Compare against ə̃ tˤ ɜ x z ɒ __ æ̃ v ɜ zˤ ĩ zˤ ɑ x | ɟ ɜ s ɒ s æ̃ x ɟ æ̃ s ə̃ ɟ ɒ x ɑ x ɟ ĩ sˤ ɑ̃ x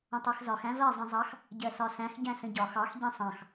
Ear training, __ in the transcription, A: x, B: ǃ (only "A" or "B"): A